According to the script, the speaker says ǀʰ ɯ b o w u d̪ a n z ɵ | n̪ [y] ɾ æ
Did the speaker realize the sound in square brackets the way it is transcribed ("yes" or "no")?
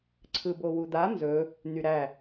yes